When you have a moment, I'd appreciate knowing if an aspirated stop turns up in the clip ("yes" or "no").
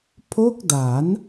yes